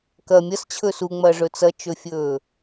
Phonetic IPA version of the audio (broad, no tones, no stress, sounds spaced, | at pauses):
k ɐ mʲ ɐ s t͡ɕʰ ɵ s u ŋ͡m ɐː ʐ ɵ t͡s ɐ t͡ʃ ɵ fʲ ɵː